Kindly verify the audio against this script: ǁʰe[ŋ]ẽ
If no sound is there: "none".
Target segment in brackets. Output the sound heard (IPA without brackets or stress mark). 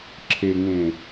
ŋ